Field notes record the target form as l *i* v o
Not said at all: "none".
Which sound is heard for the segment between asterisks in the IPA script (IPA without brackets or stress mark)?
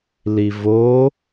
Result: i